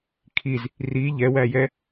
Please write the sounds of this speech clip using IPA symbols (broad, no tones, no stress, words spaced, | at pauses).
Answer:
kʰiz | ri ʎɛwæjɛ